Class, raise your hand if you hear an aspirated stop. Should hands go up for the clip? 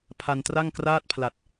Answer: yes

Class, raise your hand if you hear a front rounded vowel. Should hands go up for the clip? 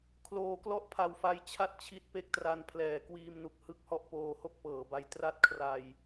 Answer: no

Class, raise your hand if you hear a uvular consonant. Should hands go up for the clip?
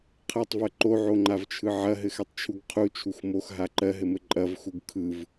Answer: yes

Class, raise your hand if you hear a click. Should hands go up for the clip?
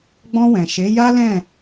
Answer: no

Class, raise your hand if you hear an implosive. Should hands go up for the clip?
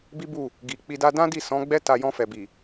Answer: no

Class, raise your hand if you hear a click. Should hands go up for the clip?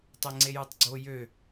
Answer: yes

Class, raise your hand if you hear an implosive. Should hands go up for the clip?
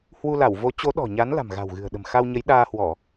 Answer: yes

